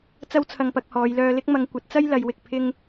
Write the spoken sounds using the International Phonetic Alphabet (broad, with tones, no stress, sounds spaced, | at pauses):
t͡s ɐ˥ w t͡sʰ ɐ˧ ŋ p ɐ˧ k̚ h ɔː˨˧ j l œː˧ l ɪ˥ k̚ m ɐ˨˧ ŋ kʷ ɐ˨˥ t̚ t͡s ɐ˥ j l ɐ˨˧ j w ɪ˨ k̚ pʰ ɪ˥ ŋ